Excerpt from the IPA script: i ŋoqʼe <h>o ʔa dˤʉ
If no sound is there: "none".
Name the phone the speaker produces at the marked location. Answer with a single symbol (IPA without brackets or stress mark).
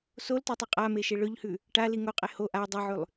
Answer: h